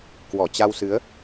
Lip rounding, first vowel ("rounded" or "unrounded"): rounded